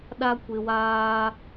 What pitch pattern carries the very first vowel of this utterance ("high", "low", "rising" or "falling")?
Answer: low